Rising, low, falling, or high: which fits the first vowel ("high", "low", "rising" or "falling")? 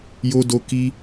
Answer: high